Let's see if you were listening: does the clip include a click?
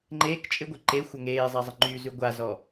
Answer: yes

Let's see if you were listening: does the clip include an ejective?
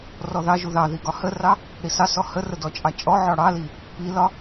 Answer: yes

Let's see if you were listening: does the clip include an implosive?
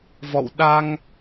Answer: yes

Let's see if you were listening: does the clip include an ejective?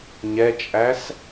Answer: yes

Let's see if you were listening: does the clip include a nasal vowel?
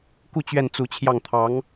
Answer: no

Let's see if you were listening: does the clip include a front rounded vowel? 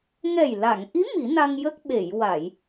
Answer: no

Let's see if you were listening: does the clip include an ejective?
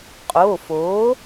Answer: yes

